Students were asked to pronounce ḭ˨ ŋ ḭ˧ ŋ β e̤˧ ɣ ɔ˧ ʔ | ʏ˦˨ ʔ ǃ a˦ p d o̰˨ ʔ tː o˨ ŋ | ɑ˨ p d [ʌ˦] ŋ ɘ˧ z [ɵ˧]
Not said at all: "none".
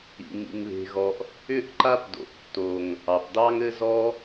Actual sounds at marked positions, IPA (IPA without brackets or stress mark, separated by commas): ɑ˦, ɔ˧